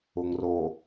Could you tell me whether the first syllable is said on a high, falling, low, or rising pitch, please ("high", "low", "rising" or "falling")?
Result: low